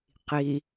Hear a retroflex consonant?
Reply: no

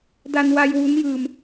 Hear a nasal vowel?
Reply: no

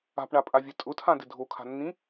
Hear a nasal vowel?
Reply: yes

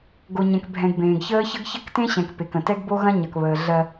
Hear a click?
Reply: no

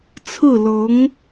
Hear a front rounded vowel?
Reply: no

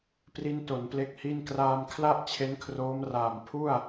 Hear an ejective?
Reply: no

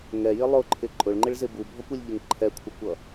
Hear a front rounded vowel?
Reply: no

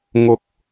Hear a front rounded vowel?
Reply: no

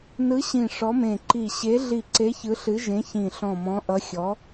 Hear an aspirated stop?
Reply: no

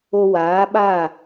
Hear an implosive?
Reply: yes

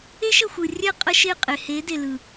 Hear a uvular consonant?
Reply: yes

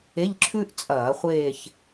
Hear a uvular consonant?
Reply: yes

